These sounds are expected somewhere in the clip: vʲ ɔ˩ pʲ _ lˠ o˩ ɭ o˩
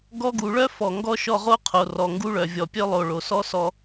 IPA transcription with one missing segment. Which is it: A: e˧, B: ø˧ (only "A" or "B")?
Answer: B